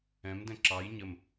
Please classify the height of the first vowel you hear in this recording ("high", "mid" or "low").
mid